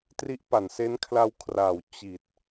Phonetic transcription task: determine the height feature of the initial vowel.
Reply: high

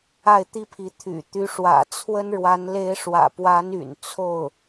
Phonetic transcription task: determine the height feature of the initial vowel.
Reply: low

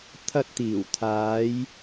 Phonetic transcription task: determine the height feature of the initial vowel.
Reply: low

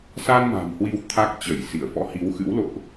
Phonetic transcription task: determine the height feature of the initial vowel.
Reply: low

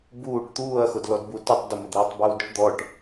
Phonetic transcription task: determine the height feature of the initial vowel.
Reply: high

